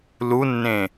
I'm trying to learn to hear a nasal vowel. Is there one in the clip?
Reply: yes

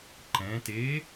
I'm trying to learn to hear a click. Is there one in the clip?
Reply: yes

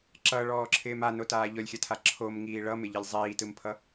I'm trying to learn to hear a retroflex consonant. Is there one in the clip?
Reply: yes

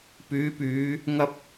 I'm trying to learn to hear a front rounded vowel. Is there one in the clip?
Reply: yes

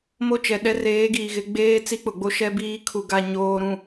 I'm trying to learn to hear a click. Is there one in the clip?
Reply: no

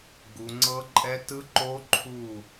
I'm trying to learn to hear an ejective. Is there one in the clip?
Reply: yes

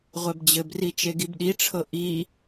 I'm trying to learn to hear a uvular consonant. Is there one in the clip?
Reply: yes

